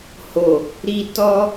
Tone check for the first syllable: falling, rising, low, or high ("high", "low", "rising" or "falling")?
low